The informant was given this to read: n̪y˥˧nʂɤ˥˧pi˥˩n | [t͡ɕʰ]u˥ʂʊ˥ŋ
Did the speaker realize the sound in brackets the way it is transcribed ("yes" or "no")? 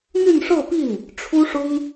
no